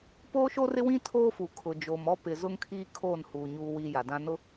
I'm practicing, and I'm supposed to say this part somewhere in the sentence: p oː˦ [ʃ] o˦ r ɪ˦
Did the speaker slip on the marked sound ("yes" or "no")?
no